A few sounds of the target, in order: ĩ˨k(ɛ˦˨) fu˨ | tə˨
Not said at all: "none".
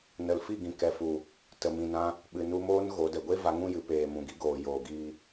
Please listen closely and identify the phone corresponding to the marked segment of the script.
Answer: ɛ˨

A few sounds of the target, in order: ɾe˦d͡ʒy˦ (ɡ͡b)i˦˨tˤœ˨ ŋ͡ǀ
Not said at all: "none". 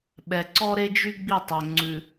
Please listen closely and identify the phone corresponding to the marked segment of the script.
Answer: ɡ͡b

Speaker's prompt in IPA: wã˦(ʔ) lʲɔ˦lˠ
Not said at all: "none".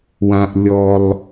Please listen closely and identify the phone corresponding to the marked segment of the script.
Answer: ʔ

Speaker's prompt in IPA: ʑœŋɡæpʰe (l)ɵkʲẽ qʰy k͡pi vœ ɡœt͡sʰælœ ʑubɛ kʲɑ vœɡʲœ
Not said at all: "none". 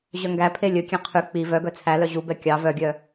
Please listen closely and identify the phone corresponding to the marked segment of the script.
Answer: lʲ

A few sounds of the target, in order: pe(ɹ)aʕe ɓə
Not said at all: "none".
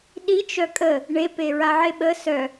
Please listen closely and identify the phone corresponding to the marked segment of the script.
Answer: ɹ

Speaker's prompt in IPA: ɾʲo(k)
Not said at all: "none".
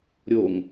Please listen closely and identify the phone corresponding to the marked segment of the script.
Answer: ŋ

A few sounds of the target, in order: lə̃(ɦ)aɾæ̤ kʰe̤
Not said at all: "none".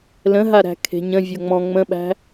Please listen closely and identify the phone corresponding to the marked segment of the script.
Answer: ɦ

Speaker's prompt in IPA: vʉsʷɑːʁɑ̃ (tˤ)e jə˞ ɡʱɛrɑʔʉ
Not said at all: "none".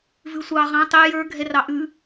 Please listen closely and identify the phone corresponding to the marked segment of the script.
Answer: tˤ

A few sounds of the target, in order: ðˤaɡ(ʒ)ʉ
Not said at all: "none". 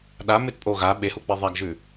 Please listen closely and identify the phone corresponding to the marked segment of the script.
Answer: ʒ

